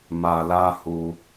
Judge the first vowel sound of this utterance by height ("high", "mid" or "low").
low